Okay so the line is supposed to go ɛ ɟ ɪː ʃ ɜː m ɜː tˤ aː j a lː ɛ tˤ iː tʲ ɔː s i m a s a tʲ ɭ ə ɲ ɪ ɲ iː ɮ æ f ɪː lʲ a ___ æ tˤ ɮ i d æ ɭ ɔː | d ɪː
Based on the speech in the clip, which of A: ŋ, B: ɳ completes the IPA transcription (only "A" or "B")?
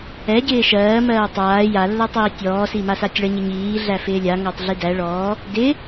A